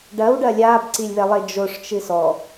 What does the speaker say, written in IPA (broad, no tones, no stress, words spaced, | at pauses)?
ɖɐwɖɐ lʲaːbǀilʲβɛlˠe d͡ʒoʂt͡ʃɨ sɔ